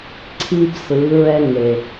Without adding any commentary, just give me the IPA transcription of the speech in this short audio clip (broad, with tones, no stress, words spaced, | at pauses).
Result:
ǀʰi˦bsɯ˨˦ɹɛ˦ ŋe˨